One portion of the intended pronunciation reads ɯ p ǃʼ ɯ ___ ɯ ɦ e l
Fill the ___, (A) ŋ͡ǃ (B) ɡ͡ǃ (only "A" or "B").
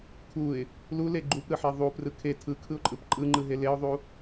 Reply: A